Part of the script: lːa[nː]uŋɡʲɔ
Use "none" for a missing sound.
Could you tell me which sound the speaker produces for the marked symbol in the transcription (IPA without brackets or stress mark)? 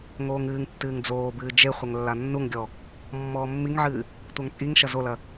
nː